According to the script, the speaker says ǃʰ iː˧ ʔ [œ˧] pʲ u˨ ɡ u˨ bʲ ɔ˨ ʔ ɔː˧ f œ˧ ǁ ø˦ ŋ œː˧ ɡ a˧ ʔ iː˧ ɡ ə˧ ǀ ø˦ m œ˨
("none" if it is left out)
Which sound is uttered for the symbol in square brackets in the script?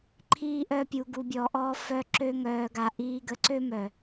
œ˧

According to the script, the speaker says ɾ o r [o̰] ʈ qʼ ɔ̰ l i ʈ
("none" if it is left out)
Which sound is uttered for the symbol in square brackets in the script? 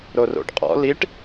o̰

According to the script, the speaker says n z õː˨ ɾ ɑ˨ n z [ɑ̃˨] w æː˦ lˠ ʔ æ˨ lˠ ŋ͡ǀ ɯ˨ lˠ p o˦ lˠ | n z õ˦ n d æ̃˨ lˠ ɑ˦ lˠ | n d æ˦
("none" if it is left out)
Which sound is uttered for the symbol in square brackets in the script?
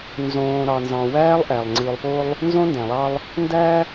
ɑ̃˨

